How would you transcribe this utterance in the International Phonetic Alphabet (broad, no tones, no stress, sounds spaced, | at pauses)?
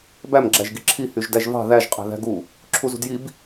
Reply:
b æ m ɡ͡ǁ æ ʒ ɡ i ǁʰ i h y ʒ d æ ʒ v ɑ̤ ð æ ʒ qʼ æ̤ ð æ̤ ɡ u | ǁʰ u z ṳ d j i b